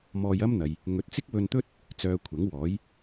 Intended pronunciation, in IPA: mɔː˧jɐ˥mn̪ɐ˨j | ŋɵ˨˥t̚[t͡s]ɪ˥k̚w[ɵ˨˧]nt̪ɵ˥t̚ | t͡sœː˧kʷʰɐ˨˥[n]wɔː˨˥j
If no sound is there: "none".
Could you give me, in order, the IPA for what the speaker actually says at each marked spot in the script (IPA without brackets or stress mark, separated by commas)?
t͡s, ɵ˧, ŋ